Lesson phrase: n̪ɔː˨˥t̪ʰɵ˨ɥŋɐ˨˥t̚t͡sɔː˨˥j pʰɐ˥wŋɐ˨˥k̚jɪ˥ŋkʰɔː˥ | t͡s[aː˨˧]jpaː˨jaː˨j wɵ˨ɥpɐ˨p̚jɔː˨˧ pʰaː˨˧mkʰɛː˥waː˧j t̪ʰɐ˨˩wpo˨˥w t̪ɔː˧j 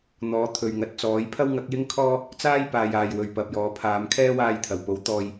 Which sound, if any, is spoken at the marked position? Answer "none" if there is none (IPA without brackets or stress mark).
aː˥